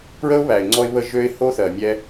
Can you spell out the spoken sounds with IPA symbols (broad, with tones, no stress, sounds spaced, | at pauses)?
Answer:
p ɹ ə˦ ʊ̯ β æ˨ ɪ̯ ŋ͡ǀ ɔ˧ ɪ̯ β ə˧ ʒ ø˦ ɪ̯ h o˦ θ ɜ˨ mʲ ɛ˧